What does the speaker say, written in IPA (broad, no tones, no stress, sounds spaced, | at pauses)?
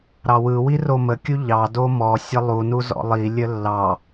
ɾ ɑ w ɯ w i r o m ə kʲ u ʎ ɑ d o m ɔ sʲ ə lˠ u n u z ɔ̰ lˠ i lʲ ə lː ɑ